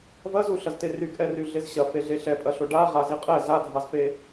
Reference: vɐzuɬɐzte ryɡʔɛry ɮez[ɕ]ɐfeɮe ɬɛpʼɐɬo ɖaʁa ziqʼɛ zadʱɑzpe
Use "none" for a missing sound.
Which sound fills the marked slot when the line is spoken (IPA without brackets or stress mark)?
ɕ